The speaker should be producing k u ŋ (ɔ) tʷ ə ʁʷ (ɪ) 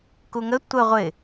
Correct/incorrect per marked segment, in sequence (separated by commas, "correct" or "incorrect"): incorrect, correct